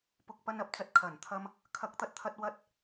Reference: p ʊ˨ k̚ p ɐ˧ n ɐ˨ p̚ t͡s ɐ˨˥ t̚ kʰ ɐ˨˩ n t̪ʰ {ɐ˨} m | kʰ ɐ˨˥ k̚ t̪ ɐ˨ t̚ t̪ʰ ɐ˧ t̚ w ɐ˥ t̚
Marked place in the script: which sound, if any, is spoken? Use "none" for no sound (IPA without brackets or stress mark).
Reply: ɐ˧